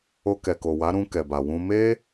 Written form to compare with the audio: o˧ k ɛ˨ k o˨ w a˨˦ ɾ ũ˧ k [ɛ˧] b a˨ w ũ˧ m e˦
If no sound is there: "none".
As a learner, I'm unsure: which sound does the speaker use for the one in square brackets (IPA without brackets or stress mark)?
ɛ˨